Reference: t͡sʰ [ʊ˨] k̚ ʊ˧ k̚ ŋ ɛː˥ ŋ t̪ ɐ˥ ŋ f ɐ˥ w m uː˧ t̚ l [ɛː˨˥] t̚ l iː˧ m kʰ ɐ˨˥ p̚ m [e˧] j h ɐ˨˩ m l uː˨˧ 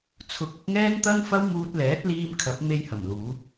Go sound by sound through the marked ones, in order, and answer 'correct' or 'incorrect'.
correct, correct, correct

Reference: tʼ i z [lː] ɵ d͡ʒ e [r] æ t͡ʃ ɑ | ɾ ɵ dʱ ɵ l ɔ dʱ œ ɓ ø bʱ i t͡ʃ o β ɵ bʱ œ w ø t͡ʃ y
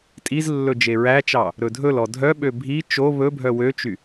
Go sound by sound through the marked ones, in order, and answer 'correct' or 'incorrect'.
correct, incorrect: ɹ

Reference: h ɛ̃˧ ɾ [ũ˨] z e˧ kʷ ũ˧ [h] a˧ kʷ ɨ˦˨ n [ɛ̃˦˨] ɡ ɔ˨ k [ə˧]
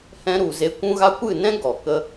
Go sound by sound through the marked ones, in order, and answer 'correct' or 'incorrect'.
incorrect: u˨, incorrect: ɣ, incorrect: ɛ̃˦, correct

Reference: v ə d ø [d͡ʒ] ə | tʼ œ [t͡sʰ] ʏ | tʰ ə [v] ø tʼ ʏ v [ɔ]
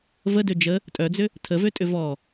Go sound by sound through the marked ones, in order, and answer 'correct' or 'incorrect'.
correct, incorrect: d͡z, correct, correct

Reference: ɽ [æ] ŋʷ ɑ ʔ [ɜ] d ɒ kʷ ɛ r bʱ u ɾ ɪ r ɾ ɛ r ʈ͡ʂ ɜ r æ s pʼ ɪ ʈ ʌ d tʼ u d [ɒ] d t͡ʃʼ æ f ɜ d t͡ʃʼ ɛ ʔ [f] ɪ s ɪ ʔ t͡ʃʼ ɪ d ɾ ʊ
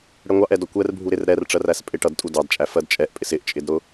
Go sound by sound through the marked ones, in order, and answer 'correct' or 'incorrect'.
incorrect: ɛ, incorrect: ɛ, incorrect: ɑ, incorrect: pʼ

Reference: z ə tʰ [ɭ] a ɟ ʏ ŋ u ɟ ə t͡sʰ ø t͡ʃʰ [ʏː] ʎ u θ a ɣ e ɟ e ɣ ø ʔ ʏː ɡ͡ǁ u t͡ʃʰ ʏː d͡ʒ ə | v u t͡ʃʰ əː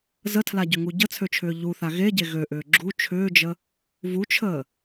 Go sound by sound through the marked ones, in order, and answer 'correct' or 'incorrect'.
incorrect: l, correct

